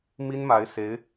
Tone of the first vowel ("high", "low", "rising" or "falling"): high